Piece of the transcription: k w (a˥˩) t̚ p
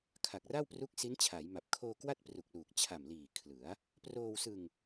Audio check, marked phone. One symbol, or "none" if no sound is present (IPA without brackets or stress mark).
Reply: a˥˩